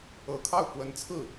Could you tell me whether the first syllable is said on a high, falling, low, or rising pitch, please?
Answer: rising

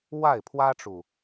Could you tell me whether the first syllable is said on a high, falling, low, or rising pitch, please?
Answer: falling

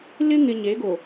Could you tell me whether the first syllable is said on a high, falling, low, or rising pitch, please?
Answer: high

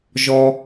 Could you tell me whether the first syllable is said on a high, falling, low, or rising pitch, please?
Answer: low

